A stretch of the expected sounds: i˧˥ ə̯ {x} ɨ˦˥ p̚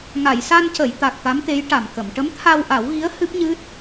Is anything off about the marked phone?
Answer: yes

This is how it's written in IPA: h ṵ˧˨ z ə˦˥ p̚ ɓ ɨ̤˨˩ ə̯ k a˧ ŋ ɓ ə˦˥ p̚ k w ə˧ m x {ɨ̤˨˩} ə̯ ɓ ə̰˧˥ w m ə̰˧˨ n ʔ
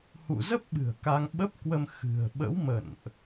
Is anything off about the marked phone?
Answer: no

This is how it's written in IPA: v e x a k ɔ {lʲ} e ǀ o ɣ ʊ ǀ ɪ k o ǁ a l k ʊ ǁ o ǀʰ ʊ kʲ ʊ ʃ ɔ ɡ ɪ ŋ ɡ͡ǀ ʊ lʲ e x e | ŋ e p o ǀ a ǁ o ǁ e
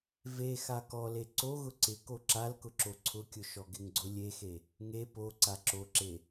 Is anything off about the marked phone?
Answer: yes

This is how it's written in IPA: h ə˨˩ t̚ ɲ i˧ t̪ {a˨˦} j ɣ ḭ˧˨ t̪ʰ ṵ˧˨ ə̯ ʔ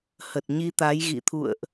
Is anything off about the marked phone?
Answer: no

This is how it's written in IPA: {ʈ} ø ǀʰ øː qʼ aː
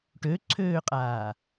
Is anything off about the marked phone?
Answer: no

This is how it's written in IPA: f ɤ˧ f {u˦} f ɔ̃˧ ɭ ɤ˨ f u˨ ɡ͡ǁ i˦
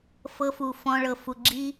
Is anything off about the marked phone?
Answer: yes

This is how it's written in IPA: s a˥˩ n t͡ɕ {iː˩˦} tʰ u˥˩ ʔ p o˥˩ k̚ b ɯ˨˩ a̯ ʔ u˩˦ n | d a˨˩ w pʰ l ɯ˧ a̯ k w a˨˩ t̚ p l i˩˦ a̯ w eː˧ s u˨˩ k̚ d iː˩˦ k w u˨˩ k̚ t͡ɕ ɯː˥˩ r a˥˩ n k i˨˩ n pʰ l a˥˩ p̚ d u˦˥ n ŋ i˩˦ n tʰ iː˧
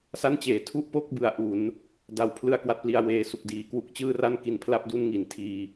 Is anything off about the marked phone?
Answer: yes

